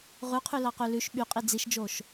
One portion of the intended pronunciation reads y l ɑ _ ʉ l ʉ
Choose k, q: q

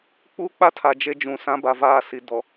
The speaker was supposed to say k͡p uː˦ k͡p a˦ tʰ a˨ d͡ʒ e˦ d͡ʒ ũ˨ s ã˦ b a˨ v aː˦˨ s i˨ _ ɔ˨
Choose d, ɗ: d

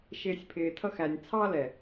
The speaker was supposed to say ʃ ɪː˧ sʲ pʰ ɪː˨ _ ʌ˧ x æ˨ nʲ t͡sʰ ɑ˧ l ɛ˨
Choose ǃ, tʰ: tʰ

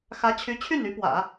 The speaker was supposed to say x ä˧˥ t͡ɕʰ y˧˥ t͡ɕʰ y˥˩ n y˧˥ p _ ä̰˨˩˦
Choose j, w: w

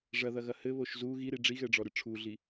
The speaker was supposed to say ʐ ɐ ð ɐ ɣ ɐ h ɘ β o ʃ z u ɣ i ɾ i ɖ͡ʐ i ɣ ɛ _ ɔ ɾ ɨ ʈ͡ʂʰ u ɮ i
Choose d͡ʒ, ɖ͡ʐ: ɖ͡ʐ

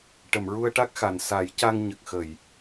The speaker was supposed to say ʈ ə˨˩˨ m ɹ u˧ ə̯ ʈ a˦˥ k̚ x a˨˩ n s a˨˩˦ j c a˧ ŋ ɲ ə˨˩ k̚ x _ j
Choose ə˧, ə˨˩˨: ə˨˩˨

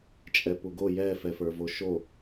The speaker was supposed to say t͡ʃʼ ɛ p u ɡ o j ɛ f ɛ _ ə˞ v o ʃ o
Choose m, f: f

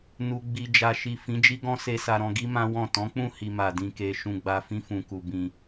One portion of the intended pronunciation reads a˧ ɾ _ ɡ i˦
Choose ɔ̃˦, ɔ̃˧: ɔ̃˧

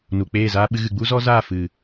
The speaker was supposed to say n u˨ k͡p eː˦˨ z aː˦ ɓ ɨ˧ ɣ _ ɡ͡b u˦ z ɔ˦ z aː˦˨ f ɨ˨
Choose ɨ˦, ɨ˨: ɨ˨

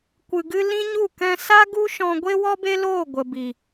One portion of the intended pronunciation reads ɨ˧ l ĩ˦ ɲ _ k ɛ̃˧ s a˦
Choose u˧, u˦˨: u˦˨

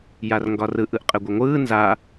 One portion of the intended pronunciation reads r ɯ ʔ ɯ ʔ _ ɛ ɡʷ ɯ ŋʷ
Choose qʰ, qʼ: qʼ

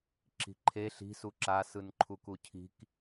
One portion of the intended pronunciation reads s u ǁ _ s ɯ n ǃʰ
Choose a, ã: a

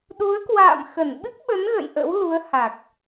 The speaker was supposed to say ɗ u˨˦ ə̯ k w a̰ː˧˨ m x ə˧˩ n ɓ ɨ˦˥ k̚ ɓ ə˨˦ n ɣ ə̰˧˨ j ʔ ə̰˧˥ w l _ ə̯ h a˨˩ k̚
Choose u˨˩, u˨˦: u˨˦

